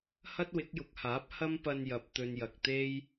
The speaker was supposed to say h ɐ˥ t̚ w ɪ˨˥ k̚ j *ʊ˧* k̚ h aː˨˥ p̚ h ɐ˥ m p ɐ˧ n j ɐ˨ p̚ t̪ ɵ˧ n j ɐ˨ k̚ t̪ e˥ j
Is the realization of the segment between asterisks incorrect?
yes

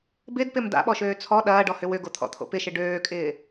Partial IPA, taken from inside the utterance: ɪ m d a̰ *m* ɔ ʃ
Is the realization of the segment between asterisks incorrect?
yes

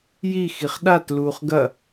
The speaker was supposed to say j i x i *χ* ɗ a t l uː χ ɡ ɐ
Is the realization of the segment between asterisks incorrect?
no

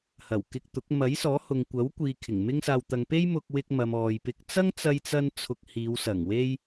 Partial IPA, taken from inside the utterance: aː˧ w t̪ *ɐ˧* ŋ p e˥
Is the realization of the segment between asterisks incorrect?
no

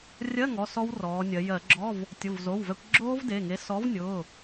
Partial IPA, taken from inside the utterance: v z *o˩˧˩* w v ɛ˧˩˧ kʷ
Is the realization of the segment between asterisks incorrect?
no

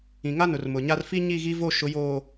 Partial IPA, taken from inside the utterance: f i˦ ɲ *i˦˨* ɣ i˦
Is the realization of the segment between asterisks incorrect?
no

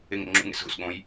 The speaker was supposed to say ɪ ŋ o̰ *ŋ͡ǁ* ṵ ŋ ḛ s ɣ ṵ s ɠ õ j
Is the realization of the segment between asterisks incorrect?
no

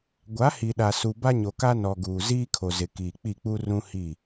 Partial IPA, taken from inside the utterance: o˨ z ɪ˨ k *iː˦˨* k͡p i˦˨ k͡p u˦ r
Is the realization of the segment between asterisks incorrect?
yes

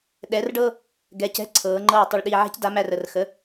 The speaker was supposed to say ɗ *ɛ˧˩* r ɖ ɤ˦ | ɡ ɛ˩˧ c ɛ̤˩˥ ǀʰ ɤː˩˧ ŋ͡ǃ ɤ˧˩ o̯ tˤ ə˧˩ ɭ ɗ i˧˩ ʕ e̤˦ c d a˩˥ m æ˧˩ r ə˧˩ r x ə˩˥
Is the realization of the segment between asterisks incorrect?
yes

